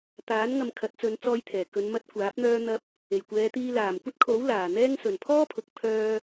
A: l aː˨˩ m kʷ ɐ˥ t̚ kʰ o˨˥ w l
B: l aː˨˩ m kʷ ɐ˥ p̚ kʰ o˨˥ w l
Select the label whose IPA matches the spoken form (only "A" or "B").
A